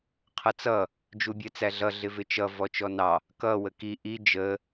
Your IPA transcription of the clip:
qʰ ʌ t͡s ʌ | d͡ʒ u bʲ ɜ t͡s æ ɮ ʌ ɮ ɪ v ɪ t͡ʃ ʌ v ɔ t͡ʃ ɔ n ɑ | k ʌ w ə k i ʔ i d͡ʒ ə

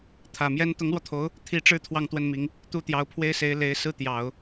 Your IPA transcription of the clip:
t̪ʰ ä˨˩ m j ɛ˥ n t̪ ʊ˧˥ ŋ l w ɔ˧ t̪ʰ o˧˥ ʊ̯ | t̪ʰ i˧˥ ʈ͡ʂ ɻ̩˥˧ t̪ʰ w ɑ˥˧ ŋ t̪ w ə˥˩ n m i˧˥ ŋ | t̪ u˥ t̪ j ɑ˧˥ ʊ̯ pʰ w e˥ ɪ̯ s e˧˥ ɪ̯ l e˧˥ ɪ̯ s ɹ̩˥˩ t̪ j ɑ˨˩˦ ʊ̯

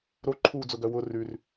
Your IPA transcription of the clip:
ɾ o ǃʰ uː d͡z ʊ ɡ œ w ʊ r ʉ r

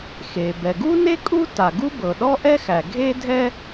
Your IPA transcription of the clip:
x e˩ b ɛ˩ ɡ u˥ n e˥ kʼ u˥ t a˩ ɡ u˥ b ɤ˩ ɗ ɔ˥ ʔ ɛ˥ x æ˩ ɡʱ e˥ dʱ ɛ˥

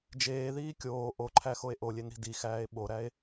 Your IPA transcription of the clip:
d͡ʒ eː ð iː kʲ oː ʔ o ǃʰ æ x o e̯ ʔ o lʲ e n ɾ i̤ d i x æː e̯ ɓ o ɾ æ e̯

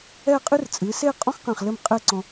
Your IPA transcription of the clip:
ɛ˥˧ qʼ ɨ˥ r t͡sʼ ɨ˩˧ s e˥˧ qʼ ɔ̃˥ x q ɛ̃˧˩ χ l ɘ˥˧ m qʼ ɘ˥˧ ǀ ɔ̃˧

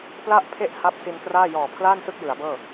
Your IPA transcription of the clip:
p l a˥˩ ʔ pʰ e˥˩ ʔ h a˦˥ p̚ s i˧ n k r aː˥˩ j ɔː˨˩ pʰ l aː˥˩ n s ɯ˥˩ k̚ j ɯ˩˦ a̯ b ɤː˥˩

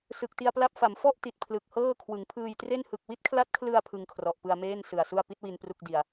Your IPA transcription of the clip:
s ɯ˨˩ k̚ t i˧ a̯ p l a˦˥ p̚ f a˩˦ m f ɔ˥˩ ʔ t i˨˩ t̚ pʰ l ɯ˨˩ k̚ h ɤː˥˩ kʰ w ɯ˩˦ ŋ pʰ ɯː˧ j t r e˥˩ n h ɯ˨˩ k̚ w i˥˩ t̚ kʰ l a˦˥ t̚ kʰ l ɯ˧ a̯ pʰ ɯ˧ ŋ kʰ r ɔ˨˩ ʔ p ɯ˧ a̯ m eː˥˩ n s ɯ˨˩ a̯ s u˥˩ a̯ p i˦˥ t̚ w i˧ n p r u˥˩ k̚ d i˨˩ a̯

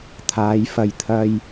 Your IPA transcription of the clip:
t̪ʰ aː˨˧ j f ɐ˨ j t̪ʰ ɐ˧ j

